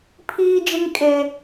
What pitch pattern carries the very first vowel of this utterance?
high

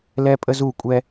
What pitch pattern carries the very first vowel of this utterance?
high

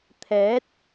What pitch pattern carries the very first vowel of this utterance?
rising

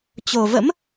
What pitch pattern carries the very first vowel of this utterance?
low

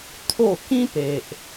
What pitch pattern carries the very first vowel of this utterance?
falling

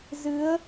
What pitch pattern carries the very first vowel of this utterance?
rising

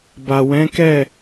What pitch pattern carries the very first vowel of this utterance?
low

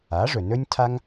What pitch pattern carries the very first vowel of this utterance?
rising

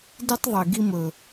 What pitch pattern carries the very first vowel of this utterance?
high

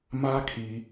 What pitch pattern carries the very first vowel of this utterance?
high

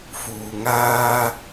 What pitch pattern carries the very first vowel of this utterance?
low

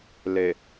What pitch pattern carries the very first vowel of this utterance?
low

